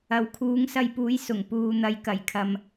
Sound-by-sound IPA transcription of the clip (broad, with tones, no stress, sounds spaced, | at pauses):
ɐ˨ w kʰ uː˨˥ ŋ s ɐ˧ j p uː˨˥ j s ʊ˨˩ ŋ p uː˨ n̪ ɐ˨˧ j k ɐ˨˩ j kʰ ɐ˨ m